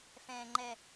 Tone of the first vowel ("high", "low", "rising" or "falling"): low